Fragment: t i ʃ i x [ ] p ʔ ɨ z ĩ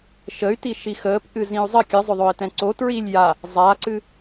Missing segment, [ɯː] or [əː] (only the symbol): əː